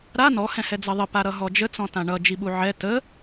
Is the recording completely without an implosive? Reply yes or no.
no